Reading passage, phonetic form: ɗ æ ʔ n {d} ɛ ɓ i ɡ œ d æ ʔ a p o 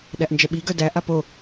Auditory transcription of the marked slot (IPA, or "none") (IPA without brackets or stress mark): d͡ʒ